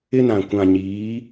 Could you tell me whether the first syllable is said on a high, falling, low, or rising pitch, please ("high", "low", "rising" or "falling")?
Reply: high